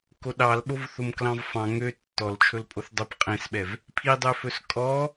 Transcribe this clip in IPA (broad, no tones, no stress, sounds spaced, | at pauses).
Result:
k o ɗ ɑ l ɓ o v θ o m k l ɑ̃ v f ɑ̃ ŋ ø tː ɔ l t͡ʃʰ ɵ l pʼ o θ dˤ ɵ p qʼ ẽ s ɓ ɛ v | pʰ i dˤ ø f ɵ s kʼ ɔ